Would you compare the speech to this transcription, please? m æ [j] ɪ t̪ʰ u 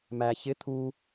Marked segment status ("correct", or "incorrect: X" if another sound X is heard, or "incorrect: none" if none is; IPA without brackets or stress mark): incorrect: ç